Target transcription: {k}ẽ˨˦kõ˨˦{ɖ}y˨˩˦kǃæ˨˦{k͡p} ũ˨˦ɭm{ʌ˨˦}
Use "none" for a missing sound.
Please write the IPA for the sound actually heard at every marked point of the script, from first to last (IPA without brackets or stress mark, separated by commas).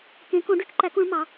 k, ɖ, k, ɑ˨˦